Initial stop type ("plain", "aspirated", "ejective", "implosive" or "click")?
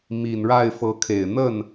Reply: aspirated